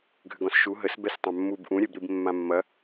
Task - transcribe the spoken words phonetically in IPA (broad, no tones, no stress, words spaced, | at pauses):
ɡʱʏɡɔ̃sʃu ɦəs bɛstˤãmːub ʔũɾʲɛbɾib mːãmːɐ